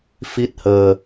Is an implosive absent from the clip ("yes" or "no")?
yes